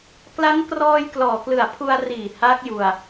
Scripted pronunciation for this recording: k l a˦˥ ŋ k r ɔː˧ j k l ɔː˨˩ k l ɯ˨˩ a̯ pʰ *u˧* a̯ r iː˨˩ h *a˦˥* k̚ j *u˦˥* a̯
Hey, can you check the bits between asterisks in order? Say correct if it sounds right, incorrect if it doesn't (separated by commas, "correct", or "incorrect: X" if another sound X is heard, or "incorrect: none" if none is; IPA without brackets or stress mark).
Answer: correct, correct, incorrect: u˧